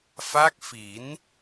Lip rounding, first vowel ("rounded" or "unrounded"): unrounded